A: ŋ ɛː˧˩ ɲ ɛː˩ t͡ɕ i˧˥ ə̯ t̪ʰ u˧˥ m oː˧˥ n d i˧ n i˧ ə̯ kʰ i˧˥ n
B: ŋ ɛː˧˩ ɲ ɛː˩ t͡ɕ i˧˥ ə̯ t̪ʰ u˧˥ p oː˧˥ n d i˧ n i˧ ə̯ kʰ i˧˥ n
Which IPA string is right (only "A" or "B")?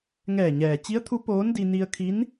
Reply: B